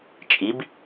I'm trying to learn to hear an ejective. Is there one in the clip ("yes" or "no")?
yes